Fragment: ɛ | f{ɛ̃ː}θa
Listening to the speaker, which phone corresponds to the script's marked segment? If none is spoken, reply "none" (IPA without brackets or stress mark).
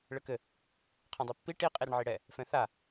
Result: ɛ̃